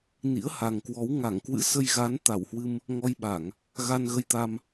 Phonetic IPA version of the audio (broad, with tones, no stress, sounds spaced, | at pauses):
n ḭ˧˥ ə̯ h a˨˩ ŋ k w ɔ˨˦ w ŋ a˧˩ ŋ k w ɨ̰˧˥ s ə˧ j ɣ a˨˦ n t̪ a˧˩ w h w ɨ˧ m | ŋ ɔ˧ j ɓ a˧˩˨ ŋ | ɣ a˧ n ɣ ə˧ j t̪ a˧ m